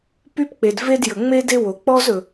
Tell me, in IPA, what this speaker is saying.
p y˥ p k͡p e˩ d v e˥ d j ə˩ ŋ͡m e˥ d e˥ w o˩ k͡p ɔ˥ z ɵ˩

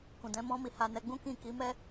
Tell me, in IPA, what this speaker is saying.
k ũ˨ d ɛ̃˨˦ m ɔ̃˦ m i˧ h a˧ n ɛ˧ ɡ͡b ũ˦ k ĩ˦˨ k i˨˦ m ɛ˦

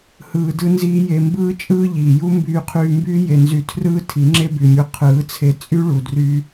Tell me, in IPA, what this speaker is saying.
h ɯː˧ d ɯ˦ n z iː˦ j e˧ m b ɯː˦ t͡ʃʼ ɯː˦ ʎ iː˨ j u˦ m b yː˧ qʰ yː˧ m b yː˦ j e˨ n z y˧ tʰ r ɯː˦ tʰ i˨˦ ŋ͡ǁ e˦ b y˨ mʲ u˧ qʰ ɯː˨˦ t͡sʰ e˧ t͡sʼ y˦ ɭ u˨ d r yː˧

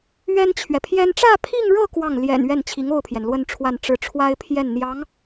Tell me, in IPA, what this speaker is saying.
ɥ ɛ˥ n t͡ɕʰ ɥ ɛ˨ pʰ j ɛ˥ n ʈ͡ʂ ä˥˧ pʰ i˥˧ ŋ ɻ ɤ˥˧ k w ɑ˥˩ ŋ l j ɛ̰˨˩ n ɥ ɛ˥˩ n t͡ɕʰ i˧˥ ŋ o˥˩ ʊ̯ pʰ j ɛ˩ n l w ə˥˧ n ʈ͡ʂʰ w a˥˧ n ʈ͡ʂ ɻ̩˥˩ ʈ͡ʂʰ w a˥ ɪ̯ pʰ j ɛ˥˩ n n̪ j ɑ˧˥ ŋ

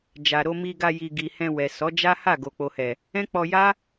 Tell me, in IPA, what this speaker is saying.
d͡ʒ a˨ ɾ o˧ m i˧ ɡ a˧ j i˨ ɡ i˨ h ɛ̃˧ w ɛ˨ s ɔ˨˦ d͡ʒ a˦ h a˦˨ ɡ o˨ k͡p o˨ h ɛ˨ | ɛ̃˦ k͡p ɔ˧ j a˦

